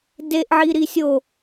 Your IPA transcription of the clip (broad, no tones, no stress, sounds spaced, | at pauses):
d e ʔ ʕ i ɾ i sʲ o